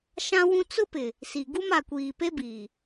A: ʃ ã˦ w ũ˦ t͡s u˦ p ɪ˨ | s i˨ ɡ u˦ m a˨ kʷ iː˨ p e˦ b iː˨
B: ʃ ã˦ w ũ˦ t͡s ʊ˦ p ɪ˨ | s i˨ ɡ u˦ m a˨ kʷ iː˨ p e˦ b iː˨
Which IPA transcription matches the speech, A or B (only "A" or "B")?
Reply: B